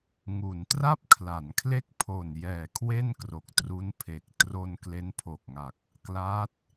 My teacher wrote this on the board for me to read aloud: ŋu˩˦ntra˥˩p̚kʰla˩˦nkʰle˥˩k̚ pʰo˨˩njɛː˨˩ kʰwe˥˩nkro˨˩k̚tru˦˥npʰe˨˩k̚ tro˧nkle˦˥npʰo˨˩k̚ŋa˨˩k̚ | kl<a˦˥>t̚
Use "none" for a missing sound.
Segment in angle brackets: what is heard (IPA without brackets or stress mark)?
a˦˥